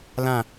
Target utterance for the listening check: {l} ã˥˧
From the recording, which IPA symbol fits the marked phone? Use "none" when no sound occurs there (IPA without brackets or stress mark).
l